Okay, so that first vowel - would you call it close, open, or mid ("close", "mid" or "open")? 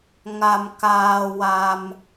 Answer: open